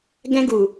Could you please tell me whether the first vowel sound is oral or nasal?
nasal